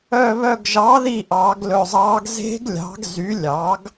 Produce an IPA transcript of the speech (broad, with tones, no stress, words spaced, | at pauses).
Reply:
œ˧˩βœ˧˩ɡ ʒɑ˩˥ði˧˩ ʔɑ˨˩˦ɡlɵ˧˩zˤɑ˧˥ɡ ze̤˧˥ɡlʲɑ̤˩˥ɡ zy˩˥ lʲɑ˩˥ɡ